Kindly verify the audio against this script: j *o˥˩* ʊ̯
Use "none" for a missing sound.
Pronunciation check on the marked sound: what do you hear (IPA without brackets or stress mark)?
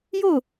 o˥˩